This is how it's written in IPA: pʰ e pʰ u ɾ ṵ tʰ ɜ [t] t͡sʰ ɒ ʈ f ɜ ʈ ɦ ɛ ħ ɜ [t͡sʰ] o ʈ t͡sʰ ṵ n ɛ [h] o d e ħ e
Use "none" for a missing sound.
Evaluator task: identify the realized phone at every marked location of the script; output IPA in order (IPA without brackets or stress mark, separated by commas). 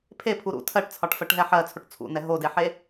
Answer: ʈ, t͡sʰ, ɦ